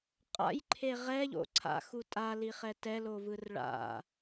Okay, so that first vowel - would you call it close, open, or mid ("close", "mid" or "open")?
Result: open